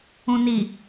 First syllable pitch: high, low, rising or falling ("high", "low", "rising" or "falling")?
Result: low